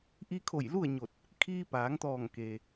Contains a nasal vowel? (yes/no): no